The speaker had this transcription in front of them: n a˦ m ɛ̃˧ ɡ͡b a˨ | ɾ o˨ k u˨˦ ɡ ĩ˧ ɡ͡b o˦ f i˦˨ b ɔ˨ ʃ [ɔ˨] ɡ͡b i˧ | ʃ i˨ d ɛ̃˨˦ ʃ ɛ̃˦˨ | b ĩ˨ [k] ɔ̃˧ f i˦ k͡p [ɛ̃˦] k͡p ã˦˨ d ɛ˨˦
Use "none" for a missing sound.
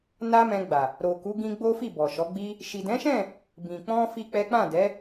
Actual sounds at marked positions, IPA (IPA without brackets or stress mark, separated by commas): ɔ˨˦, k͡p, ɛ˦